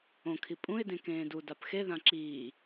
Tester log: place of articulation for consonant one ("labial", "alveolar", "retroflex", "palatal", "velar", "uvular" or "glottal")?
velar